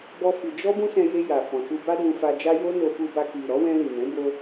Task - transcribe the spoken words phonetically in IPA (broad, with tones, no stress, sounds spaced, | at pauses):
b ɔ˦ f i˧ d͡ʒ ɔ˦ b ũ˦ s ɛ̃˧ j e˧ j a˨ f ɔ̃˨ ʃ u˧ b a˦ d ũ˧ f a˧ d͡ʒ a˦ j o˦ n o˧ f u˧ b a˧ k i˨ ɾ ɔ˨˦ w ɛ̃˧ l i˨ n ɛ̃˨˦ b o˧